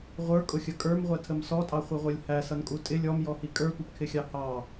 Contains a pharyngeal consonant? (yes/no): no